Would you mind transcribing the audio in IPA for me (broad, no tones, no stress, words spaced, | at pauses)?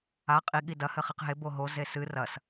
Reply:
a qʼi ɠidɐ hɘχiqɦe boɦo zesɨ rɐs